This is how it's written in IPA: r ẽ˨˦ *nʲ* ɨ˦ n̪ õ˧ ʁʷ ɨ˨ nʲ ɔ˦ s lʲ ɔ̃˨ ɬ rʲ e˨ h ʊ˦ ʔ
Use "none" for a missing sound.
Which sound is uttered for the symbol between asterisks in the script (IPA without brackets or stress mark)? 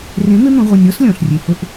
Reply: n̪